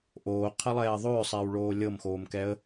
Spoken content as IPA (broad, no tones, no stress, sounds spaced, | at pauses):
ʔ oː qʰ ɐ lˠ ɛː ðˤ ʏː sˤ ɛː w ɭ oː lʲ ɤ m x oː m k ɛ ə̯